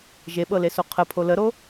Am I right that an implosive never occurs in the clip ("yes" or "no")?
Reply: no